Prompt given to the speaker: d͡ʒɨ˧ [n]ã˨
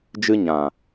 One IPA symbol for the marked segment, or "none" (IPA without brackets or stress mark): ɲ